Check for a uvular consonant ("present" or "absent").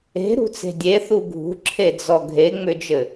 absent